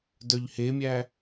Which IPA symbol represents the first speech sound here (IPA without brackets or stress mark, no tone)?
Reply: d